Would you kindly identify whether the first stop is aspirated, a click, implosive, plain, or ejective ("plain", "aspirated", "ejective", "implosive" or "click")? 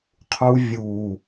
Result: aspirated